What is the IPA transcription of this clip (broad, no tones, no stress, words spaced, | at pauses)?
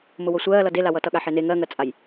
mʊwosʷɜːlʌ delawʌ tʌɠaħene ŋɜŋɜt͡sʼaj